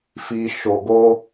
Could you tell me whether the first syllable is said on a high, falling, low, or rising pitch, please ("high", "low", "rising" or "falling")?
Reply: high